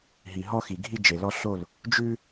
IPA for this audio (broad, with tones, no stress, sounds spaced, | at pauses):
ɦ i˨ ɦ ɔ˦ x i˨ ɡʱ i˦ d͡ʒ e˨ l ɔ˦ ɬ o˦˨ l | d͡ʒ ʉ˦